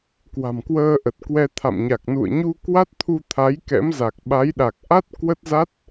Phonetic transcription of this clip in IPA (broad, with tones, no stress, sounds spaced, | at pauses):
k w a̤˨˩ m k w əː˧ ʔ ə˨˩ t̚ k w ɛ˧ t̪ʰ a̰˧˨ m ɲ a˨˩ k̚ n ṵ˧˨ ə̯ ɲ u˧ k w a˦˥ t̚ t̪ʰ u˧ t̪ʰ a˨˦ j k ɛ̰˧˥ m z a˨˩ k̚ ɓ a˨˦ j ɗ a˨˩ k̚ ʔ a˦˥ t̚ k w ə˦˥ t̚ z a˦˥ t̚